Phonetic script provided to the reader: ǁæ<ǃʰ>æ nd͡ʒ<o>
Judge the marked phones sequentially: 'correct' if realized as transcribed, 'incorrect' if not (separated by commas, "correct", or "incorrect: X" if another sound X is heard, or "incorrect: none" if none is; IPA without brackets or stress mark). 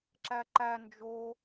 incorrect: ǃ, correct